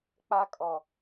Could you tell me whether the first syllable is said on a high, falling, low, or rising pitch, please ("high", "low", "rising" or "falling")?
high